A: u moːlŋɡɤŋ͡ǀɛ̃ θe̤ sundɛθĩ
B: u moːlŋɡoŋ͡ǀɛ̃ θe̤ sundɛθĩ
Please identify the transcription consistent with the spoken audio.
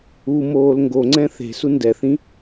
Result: B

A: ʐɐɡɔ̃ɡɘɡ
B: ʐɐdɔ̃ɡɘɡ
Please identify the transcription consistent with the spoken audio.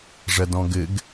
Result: B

